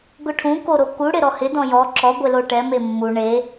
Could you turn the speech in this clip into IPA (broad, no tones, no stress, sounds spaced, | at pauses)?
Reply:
ɡ ʊ ʈʰ ũ k o ɾ o k u ɽ ɪ ɾ ɔ h ɪ d ɔ̃ j ɔ ǁ ɔ ɡʷ e l o ʈ ɛ m e mː u ɳ e